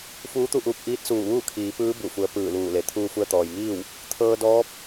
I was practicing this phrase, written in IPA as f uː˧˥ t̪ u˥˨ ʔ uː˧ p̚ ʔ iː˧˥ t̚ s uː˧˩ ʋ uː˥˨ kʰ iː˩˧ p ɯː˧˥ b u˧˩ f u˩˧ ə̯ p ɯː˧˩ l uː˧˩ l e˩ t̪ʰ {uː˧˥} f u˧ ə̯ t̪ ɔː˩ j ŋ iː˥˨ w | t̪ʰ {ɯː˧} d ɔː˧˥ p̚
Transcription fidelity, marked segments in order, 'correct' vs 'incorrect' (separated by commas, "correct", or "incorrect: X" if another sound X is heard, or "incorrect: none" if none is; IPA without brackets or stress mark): incorrect: uː˧, incorrect: ɤː˧